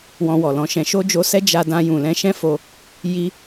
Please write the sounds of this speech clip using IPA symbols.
wɔ̃˧wɔ˨lɔ̃˧ʃɛ̃˧ ʃo˦d͡ʒo˧sɛ˦ d͡ʒa˧dã˧ jũ˨lɛ̃˧ʃɛ̃˦ fo˧ | ji˧

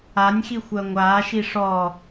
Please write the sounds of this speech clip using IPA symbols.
anʲxixʷɜ ŋʷaːʃi ʂɔ

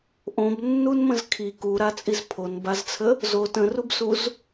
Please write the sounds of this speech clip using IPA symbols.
ʔõbnːunmə̃z kʰi kuɾat͡sʼiz pʰonbazt͡sʰə | zo tə̃rubsuz

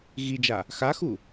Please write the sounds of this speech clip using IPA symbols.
ɣid͡ʒa | xaxu

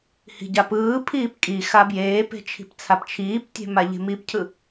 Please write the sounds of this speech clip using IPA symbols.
hi̤ɟapɯːpʰiːp kʼi xabjeːpe̤ t͡ʃʰi̤pt͡sʰapt͡ʃʰiːptʲe̤ maʎe̤mipcʰɯ

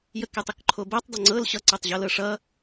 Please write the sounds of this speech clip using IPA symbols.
jəkɛtˤəkǃʰo bɛtˤdˤə ŋ͡ǀɤl ɕʌǀʌtˤʑɤlɤ ʂʌ

